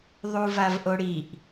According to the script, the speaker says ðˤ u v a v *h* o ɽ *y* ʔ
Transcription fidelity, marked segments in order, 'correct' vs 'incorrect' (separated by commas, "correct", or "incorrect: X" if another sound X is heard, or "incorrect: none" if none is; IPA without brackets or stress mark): incorrect: ʔ, incorrect: i